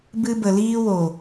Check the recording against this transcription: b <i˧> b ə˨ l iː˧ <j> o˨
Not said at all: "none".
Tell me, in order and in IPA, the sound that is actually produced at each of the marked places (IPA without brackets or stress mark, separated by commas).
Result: ɨ˧, w